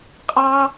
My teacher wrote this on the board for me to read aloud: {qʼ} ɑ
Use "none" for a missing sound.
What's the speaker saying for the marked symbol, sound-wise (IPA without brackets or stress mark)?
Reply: qʼ